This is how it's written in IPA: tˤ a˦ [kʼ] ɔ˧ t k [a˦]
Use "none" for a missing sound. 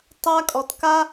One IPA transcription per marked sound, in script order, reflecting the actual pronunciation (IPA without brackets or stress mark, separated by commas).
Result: kʼ, a˦